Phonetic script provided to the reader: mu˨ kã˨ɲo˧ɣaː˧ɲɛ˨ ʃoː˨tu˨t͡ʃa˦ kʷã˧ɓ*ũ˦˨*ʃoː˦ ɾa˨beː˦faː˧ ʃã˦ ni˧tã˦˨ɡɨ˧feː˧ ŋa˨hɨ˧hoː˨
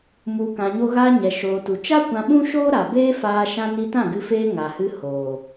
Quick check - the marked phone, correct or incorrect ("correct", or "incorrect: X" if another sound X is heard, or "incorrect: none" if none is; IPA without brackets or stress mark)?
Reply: incorrect: ũ˦